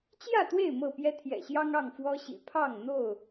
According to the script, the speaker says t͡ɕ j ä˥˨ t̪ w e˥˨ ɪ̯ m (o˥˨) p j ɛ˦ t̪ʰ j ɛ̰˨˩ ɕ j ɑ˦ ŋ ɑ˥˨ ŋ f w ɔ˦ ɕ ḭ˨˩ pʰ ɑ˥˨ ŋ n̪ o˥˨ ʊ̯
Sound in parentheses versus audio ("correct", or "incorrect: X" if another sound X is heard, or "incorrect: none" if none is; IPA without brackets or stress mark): incorrect: ɤ˥˨